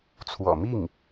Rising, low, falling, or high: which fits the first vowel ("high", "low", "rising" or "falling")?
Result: low